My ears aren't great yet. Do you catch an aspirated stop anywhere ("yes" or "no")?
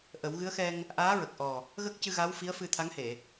yes